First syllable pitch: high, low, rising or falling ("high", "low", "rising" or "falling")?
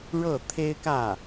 falling